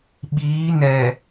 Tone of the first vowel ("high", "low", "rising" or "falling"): rising